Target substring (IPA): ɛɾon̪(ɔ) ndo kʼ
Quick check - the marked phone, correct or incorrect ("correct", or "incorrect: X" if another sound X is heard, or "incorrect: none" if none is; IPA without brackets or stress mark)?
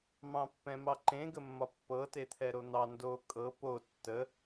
incorrect: ɑ